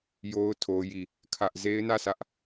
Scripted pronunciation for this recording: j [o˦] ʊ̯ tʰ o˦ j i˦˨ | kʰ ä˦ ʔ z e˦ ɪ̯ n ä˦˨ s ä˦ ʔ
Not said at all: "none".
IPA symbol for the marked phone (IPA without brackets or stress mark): o˦